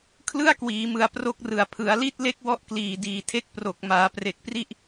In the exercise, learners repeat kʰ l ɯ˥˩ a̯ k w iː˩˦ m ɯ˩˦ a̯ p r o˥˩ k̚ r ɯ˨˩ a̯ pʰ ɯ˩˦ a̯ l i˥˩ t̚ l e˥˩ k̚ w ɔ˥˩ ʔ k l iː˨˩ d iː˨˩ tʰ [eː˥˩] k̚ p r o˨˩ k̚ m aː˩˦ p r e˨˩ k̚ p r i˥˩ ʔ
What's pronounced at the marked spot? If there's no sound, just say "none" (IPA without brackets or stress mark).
e˥˩